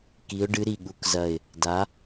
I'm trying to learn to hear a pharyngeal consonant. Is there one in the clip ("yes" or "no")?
no